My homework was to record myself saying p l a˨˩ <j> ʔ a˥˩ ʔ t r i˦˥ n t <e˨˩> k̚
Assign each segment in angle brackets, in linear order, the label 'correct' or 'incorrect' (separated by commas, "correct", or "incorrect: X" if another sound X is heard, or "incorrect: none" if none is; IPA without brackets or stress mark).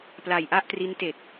correct, correct